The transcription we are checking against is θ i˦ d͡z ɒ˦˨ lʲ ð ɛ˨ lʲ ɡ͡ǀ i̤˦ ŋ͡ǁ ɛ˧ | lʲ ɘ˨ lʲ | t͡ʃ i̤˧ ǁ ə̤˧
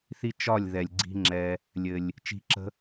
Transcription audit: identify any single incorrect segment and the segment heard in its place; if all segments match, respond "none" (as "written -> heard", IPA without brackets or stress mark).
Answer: d͡z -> t͡ʃ